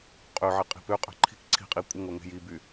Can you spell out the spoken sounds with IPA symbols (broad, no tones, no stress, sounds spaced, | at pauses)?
qʼ ø ʕ e qʼ i̤ p ø qʼ ɛ̤ ǃʰ i̤ k ǀʰ i̤ qʼ i kʷʼ ə ŋ o ŋ e̤ j i b y